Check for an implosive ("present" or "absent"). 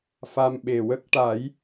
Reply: present